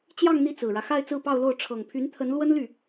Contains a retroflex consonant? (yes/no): yes